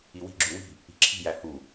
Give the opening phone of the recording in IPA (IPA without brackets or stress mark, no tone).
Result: i